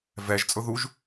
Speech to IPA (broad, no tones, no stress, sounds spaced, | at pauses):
v ɛ ʒ t͡sʼ ʊ ð u ʒ